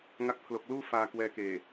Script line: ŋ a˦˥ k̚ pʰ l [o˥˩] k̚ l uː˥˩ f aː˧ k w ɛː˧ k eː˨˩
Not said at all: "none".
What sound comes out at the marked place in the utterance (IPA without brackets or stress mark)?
o˨˩